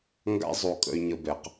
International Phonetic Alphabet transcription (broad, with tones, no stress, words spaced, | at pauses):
ŋɡa̰˦zˤo˨ kʼə̰˦y̯ɲə˦bɛ˨q